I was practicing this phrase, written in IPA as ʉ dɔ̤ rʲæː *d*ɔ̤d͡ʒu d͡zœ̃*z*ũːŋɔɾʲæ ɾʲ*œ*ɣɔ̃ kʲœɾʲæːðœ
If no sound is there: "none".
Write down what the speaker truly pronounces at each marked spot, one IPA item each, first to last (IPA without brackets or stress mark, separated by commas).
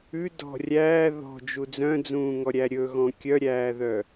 ð, d͡z, ɵ